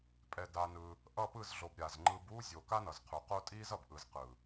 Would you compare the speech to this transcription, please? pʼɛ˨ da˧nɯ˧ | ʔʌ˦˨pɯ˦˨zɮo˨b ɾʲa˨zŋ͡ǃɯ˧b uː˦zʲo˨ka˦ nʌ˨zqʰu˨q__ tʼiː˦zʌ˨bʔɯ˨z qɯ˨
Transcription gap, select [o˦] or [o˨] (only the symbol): o˦